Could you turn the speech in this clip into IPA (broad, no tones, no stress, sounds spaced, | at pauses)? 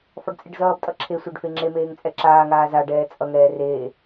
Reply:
f ɒ ɖ t͡sʼ e ɖ z ʌː b tʼ ʌ ǁʰ e sʷ e ɖ f e ŋ͡ǁ e m eː ŋ t͡sʼ ɛ ǁ aː ŋ aː z a ɖ ɛː t͡sʼ ʌ ŋ ɛː r eː